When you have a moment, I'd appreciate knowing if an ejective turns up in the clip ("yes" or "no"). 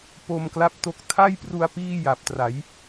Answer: no